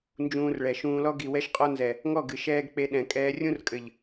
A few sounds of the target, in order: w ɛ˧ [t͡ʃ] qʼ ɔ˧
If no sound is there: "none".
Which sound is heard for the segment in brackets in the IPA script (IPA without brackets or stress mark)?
ʃ